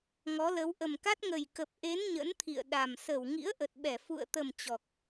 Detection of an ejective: absent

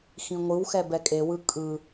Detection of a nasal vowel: present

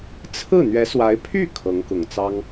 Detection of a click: absent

